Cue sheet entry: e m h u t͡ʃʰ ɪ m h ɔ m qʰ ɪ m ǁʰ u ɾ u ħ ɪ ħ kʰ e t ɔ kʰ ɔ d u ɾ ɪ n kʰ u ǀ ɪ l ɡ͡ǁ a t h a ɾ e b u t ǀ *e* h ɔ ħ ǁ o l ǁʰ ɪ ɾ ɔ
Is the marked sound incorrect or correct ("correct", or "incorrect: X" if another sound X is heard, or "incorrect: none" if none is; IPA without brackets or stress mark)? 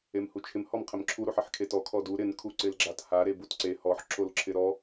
correct